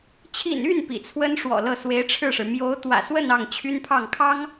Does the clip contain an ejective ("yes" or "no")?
no